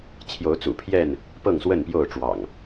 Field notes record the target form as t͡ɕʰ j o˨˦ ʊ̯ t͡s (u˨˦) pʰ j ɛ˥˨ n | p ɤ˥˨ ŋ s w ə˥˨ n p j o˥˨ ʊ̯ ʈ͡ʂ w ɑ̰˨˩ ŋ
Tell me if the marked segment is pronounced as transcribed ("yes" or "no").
no